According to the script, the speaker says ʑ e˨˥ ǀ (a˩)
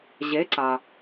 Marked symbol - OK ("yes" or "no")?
yes